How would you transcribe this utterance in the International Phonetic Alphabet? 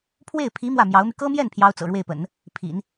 pʰ w e˥˩ ɪ̯ pʰ i˧˥ m w ä˥˩ m j ɑ˧˥ ʊ̯ m y˧ k ɤ˥ m j ɛ˥˩ n pʰ j ɑ˥ ʊ̯ t͡s ɤ̰˨˩ ɻ w e˥˩ ɪ̯ p ə̰˨˩˦ n | pʰ ḭ˨˩˦ n

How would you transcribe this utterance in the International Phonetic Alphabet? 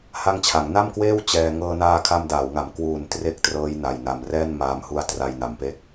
h a˦˥ ŋ t͡ɕʰ a˩˦ ŋ n a˥˩ m k w eː˥˩ w t͡ɕ ɛː˧ ŋ ɤː˧ n aː˧ kʰ a˧ m d aː˩˦ w ŋ a˨˩ m k w uː˨˩ n t r e˥˩ k̚ t r ɤː˦˥ j n a˧ j n a˧ m r ɛː˥˩ n m aː˧ m h u˦˥ a̯ t r a˧ j n a˨˩ m p e˦˥ k̚

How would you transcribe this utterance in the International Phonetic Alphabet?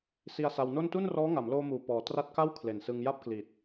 s i˧ a̯ s a˧ w n o˥˩ n t u˥˩ n r ɔː˦˥ ŋ a˩˦ m l oː˧ m uː˨˩ p ɔː˨˩ t r a˦˥ t̚ k a˥˩ w kʰ l e˨˩ n s ɯ˧ ŋ j a˥˩ p̚ k l i˨˩ t̚

